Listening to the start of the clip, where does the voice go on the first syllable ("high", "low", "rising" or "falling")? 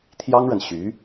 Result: high